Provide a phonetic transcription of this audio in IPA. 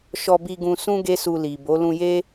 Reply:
ʃ ɔ˧ b i˧ ɡ ũ˧ s ũ˦ ɡ e˦ s u˧ l i˨ b o˨˦ l ũ˧ j e˦

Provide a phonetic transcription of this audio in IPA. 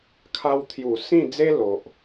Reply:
kʰ a˧ w t̪ʰ j u˨˩ s ĩ˥˧ d͡z e˦ l o˨ ʔ

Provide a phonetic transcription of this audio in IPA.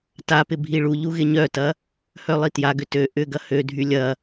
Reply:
t a p ɪ bʱ i ɭ u ʎ u ɣ ɪ ɲ œ t ɐ | h œ lˠ i t j a ɡ ʏ t ø ʔ ʏ ɡ ɐ h ø dʱ y lʲ ɐ

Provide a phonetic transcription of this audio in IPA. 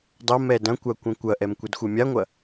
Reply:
dˤ ɐ m ɛ d ɐ̃ kʷ a kʷ ɐ̃ kʷ ɐ ʔ ɛ m kʷ ɛ d xʷ ɛ mʲ a ŋʷ ɐ

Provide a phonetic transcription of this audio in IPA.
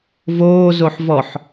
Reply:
v oː z o ħ v ɔ ħ

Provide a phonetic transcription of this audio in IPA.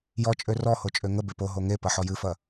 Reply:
j ɔ t͡ʃʼ ø r ɔ h o t͡ʃʼ ø ŋ ə b e p o ɦ o ŋ e p ɐ ħ ɔ j ɨ f ɐ

